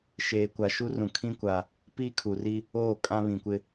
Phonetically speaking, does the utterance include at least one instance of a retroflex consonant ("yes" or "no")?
no